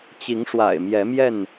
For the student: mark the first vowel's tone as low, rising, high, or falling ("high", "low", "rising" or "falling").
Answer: rising